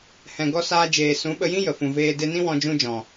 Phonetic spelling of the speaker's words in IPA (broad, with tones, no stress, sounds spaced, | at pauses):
h ɛ̃˨ ɡ ɔ˧ s aː˧ d͡ʒ eː˨ s ũ˨˦ ɓ ə˧ j ĩ˦ j ə˨ f ũ˨ v eː˧ d e˧ n ĩ˦ w ɔ̃˧ d͡ʒ ũ˧ d͡ʒ ɔ̃˨